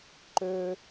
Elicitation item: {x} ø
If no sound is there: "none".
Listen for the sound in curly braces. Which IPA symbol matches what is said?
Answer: ǃ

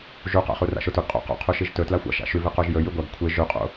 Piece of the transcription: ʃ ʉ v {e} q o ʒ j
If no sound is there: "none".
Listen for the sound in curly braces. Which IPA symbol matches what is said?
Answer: e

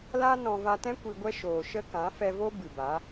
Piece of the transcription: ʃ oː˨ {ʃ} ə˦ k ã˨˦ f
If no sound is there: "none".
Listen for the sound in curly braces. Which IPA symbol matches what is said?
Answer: ʃ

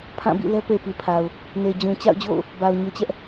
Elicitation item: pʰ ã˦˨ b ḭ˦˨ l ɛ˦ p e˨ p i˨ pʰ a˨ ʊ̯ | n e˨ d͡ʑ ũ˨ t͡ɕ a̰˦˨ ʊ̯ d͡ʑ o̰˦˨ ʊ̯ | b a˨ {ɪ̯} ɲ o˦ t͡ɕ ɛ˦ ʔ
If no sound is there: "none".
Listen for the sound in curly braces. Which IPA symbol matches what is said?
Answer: ʊ̯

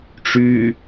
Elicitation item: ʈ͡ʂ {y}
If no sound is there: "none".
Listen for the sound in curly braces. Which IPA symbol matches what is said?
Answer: y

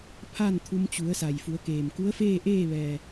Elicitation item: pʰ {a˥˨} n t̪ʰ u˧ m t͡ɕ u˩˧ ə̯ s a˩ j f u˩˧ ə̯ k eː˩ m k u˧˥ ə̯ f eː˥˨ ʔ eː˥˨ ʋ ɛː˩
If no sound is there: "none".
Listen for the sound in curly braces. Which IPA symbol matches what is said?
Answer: a˥˨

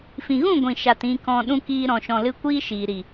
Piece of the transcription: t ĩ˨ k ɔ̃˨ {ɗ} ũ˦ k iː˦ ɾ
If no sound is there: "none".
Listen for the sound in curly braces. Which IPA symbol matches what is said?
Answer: ɗ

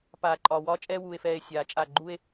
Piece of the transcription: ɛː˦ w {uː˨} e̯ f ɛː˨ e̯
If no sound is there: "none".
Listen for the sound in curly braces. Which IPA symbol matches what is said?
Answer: uː˨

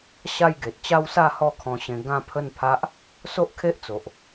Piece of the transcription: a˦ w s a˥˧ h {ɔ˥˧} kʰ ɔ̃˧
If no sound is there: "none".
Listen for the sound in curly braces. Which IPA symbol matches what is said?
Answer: ɔ˥˧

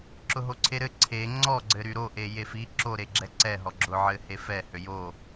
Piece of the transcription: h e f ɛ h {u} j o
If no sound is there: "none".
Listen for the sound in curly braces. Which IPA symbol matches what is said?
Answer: ø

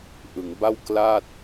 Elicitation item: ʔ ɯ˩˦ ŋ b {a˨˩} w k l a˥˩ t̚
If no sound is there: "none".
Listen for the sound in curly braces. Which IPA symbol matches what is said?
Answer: a˥˩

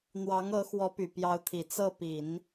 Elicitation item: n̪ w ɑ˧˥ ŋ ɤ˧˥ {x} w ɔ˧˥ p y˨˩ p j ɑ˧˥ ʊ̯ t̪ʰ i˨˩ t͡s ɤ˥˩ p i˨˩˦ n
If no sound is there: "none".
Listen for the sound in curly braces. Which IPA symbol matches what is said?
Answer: x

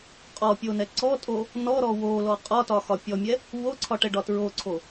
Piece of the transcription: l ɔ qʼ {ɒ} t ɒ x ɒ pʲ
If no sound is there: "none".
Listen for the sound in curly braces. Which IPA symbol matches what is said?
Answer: ɒ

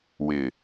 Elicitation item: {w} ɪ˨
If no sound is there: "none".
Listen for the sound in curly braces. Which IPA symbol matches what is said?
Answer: w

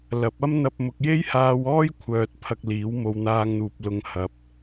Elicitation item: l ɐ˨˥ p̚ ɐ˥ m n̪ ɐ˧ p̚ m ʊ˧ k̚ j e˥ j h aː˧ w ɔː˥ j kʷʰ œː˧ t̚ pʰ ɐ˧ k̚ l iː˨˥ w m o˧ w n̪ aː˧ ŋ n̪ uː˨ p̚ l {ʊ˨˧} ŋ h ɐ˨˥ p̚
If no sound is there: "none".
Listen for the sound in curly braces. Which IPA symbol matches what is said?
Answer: ʊ˨˧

